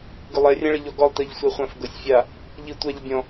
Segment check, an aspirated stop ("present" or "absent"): absent